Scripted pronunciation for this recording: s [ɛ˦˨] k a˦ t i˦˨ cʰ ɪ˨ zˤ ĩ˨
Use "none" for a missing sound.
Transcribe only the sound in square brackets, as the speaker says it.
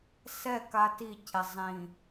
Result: ɛ˦˨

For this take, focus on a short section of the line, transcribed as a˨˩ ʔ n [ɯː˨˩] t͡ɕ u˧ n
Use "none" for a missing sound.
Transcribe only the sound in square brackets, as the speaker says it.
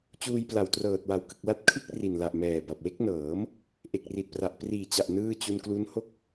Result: ɯː˥˩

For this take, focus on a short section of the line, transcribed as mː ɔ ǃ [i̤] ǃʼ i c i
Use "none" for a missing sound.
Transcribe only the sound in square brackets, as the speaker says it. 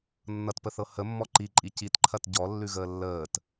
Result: i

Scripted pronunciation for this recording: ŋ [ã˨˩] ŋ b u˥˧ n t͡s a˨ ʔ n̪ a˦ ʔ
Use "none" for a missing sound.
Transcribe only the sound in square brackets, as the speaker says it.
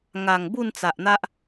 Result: a˨˩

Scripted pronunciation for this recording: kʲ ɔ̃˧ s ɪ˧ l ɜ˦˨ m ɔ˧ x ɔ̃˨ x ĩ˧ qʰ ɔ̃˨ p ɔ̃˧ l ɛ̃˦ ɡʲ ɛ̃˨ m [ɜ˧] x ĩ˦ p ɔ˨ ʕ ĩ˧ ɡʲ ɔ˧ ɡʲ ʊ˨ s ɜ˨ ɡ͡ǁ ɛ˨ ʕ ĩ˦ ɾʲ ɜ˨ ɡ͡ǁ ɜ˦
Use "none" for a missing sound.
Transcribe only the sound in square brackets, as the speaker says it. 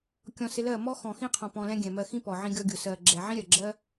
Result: ɜ˧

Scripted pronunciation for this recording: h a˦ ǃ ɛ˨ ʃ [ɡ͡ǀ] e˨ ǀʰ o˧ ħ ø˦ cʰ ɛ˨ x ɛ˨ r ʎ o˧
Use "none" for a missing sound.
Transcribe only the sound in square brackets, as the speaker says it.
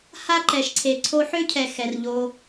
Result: ǀʰ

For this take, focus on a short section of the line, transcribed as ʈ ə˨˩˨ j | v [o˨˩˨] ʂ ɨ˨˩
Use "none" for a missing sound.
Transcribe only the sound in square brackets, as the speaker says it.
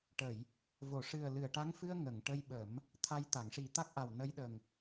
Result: o˨˩˨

